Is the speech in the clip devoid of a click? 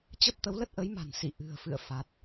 yes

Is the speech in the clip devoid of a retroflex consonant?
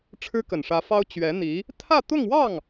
no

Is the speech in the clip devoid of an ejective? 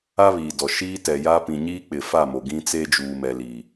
yes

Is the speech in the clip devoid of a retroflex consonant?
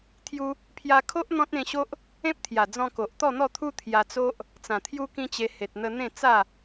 yes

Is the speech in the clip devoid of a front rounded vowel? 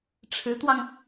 yes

